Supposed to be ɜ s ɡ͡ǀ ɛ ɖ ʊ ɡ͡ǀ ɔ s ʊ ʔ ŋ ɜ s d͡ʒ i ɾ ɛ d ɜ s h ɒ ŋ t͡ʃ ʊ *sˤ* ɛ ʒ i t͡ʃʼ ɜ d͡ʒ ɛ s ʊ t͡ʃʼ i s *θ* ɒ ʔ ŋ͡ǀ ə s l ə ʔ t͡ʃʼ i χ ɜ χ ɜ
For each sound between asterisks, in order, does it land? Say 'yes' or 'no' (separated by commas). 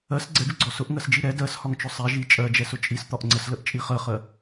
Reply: yes, no